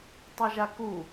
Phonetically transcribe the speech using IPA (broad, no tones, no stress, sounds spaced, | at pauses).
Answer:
tˤ ə ʒ a k u